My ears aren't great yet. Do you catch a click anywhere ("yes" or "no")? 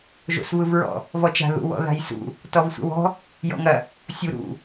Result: no